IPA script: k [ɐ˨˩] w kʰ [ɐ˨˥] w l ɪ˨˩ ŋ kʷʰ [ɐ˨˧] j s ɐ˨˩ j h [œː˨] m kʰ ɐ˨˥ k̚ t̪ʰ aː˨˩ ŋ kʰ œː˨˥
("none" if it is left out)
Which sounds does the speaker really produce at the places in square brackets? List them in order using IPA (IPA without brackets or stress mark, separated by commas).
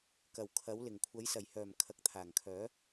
ɐ˨˩, ɐ˨˥, ɐ˨˥, œː˨˩